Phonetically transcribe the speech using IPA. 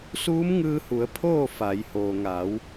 suː˧˥mŋɯː˧hu˩˧ə̯ pʰoː˥˨ fa˩˧j hoː˩ŋa˩˧w

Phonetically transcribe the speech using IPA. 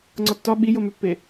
ŋ͡ǀɒtːɒ ɓijomøpːe

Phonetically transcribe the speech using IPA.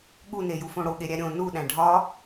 ɠunejufõ ɽoɠeɾʲæ ɾʲõ nuɗæ̃ ɖʱɒ

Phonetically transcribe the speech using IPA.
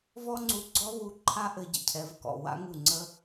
vɔ˥ŋ͡ǀu˧ɡ͡ǀɔ˥βu˧ ǃʰa˥ʔɘ˧ ɟə̰˥˩cʰɛ˩˥vkɔ̰˩ wa̰˥ŋu˥˩ŋ͡ǀə˥

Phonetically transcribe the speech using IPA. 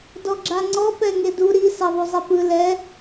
dɔɡ͡ǁaŋ͡ǀɔ pɛŋedu ɾi sɛðˤuzˤepɯ lɛ

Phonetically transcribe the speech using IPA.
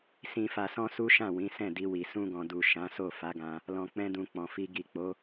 sĩ˨fa˨sɔ̃˧ su˦ʃã˦˨wĩ˨˦ sɛ̃˦˨di˧wi˨ sũ˧ɡɔ̃˨du˨ ʃã˨˦so˦˨ fa˨˦ɡã˧ | lɔ̃˨k͡pɛ̃˧dũ˨ k͡pɔ̃˨fi˧ ɡi˨k͡po˨˦

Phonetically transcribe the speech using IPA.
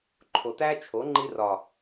ǃʰo˨tæ˦t͡ʃʰo˨˦ ŋ͡ǃi˧rɒ˨

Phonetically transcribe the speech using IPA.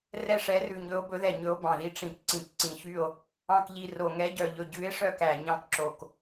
rɛ˦˨ʂɛ˨˦rʉ˨˩ɲɵ˨˦o̯ bɵ˨˦ðɛ˨˩ ɲɵ˨˦o̯ bɑ̃˨˩ði˨˦ ʈ͡ʂĩ˨˩k ǀĩ˨˩kǀĩ˨˩çy˦˨o̯ | ɑ̃˦˨kʎi˦˨ro˨˩ ŋɛ˨˦ɟœ˨˩ʎɵ˨˩ ɟʉ˨˦e̯ʂœ˦˨k æ˨˩ɲɑ̃˦˨kǁo˨˩k

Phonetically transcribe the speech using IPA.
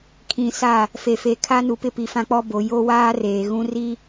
kʰĩ˨sa˦˨ | fe˨fe˨kʰa˦ nu˨pɪ˦ pi˨fã˦k͡pɔ˦ bo˨ jo˦waː˦ reː˨ɣũ˦ ri˦

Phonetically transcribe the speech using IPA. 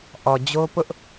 ʔɔ˨d͡ʑo˦pʊ˦ʔ

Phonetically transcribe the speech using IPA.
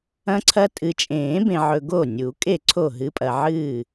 ɐ̃˦ǀʰɐ˦ tʼɨ˨t͡ʃʼẽː˨˩˦bẽ˨ʕɵ˨ ɡo˥˩nʲu˨˩˦ kʼe˥˩ ǀʰo˥˩ɦɨ˨˥pʼɐ˨ ʕɨː˥˩

